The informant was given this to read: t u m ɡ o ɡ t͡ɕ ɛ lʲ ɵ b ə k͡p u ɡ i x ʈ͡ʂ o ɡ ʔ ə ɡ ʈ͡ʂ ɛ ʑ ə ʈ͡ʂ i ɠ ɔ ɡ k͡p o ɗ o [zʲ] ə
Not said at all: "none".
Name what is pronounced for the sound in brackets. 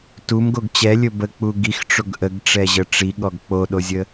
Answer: zʲ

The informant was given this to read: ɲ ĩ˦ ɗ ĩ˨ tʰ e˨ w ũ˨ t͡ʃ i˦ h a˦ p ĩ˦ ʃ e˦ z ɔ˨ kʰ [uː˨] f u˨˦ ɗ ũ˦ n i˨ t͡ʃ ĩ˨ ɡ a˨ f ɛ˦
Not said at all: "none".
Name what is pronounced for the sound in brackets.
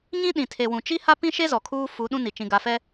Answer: uː˦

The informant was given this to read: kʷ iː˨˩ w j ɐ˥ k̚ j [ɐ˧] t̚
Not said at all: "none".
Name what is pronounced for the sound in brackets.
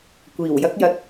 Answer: ɐ˧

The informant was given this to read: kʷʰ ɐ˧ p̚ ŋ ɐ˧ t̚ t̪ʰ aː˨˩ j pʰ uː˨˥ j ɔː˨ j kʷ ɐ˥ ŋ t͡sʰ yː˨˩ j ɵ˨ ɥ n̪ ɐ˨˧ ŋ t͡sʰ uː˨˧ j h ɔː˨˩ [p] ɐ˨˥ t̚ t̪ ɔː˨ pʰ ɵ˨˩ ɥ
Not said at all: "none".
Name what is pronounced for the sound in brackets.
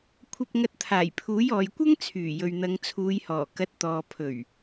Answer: k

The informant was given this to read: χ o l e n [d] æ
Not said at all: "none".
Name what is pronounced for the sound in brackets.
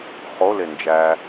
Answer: d͡ʒ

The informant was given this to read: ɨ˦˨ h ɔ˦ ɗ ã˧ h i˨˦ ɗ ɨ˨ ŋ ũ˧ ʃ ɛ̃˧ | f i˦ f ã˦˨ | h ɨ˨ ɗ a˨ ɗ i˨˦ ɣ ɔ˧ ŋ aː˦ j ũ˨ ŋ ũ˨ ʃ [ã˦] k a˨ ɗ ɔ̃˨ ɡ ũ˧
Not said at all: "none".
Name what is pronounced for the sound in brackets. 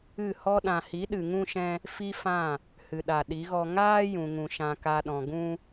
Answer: ã˨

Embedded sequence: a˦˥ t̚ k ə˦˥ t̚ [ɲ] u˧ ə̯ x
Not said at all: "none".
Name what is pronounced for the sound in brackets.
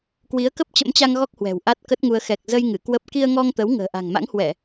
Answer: ŋ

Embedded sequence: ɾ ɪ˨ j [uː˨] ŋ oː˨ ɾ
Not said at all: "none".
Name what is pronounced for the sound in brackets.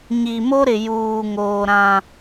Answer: uː˨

